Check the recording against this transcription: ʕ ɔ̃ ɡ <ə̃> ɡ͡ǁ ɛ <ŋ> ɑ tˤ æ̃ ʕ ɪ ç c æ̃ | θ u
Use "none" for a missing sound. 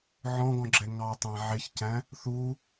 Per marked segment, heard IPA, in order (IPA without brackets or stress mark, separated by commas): ɔ̃, ŋ